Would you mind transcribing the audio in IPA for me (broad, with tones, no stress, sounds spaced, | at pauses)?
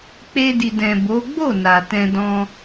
k͡p e˦ d i˧ d ɛ̃˨ b o˨˦ ɡ͡b o˦˨ n a˨ t ɛ̃˧ d ɔ̃˧